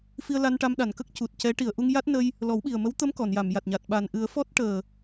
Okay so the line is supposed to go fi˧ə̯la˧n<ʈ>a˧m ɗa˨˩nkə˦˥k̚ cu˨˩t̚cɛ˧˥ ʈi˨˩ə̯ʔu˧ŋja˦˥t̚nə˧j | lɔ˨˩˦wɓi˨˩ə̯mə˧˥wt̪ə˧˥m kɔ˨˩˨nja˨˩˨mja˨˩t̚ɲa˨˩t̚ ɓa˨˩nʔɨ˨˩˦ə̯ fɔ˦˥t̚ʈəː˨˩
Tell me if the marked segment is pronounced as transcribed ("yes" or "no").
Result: yes